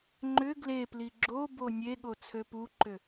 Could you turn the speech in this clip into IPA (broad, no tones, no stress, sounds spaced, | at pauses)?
ŋ͡ǃ ʏ ɡ l e p l i ɡ͡ǁ o b o nʲ e ɠ o t͡sʰ ø p u ǃ ʏ